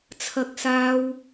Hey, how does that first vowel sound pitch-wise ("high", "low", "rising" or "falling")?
high